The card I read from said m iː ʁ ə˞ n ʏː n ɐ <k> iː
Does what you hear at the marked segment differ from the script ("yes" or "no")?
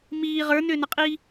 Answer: yes